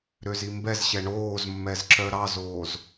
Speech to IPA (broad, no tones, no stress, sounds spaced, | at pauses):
ɾ ø z i m b ɛ z ɕ ɛ ɳ oː z mː ɛ z ǁ œ ɾ ɑ z oː z